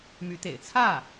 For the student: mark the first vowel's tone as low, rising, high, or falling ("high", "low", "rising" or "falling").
rising